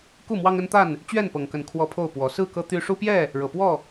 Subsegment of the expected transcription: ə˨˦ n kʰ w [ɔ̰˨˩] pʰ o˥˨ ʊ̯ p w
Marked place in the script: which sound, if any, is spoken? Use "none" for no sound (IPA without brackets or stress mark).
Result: ɔ˦